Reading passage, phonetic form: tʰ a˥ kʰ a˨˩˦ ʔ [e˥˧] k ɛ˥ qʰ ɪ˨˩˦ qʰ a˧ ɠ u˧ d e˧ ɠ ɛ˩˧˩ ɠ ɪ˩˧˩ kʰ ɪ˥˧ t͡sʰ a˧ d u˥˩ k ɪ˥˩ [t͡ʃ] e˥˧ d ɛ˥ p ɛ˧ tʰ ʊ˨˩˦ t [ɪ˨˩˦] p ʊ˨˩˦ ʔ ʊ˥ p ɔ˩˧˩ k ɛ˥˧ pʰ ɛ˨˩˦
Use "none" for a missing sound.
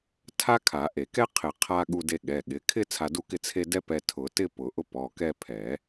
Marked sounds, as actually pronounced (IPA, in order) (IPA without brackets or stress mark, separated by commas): e˨˩˦, t͡sʰ, ɪ˥˧